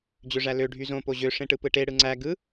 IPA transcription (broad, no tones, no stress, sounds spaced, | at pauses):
d͡ʑ ø ʐ æ l ø ɖʱ y z õ p o ʑ ø ʂ ẽ ʈ ɯ p ɯ ʈ e ɽ ɯ ŋ͡ǀ æ ɡ ɯ